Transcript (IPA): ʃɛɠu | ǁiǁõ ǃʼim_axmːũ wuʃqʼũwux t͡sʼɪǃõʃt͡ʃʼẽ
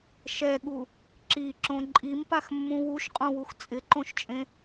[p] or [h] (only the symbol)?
p